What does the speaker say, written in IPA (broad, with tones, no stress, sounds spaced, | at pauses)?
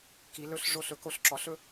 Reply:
k i˩˧ l ɵ˧˩ ɬ ʐ o˧˩ ɬ ɵ˩˧ k o˧˩ ɬ ǁ ɔ˩˥ ɬ ɵ˦